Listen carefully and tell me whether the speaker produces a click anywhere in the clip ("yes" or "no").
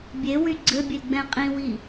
yes